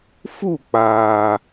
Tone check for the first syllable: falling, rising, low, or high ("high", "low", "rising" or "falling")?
falling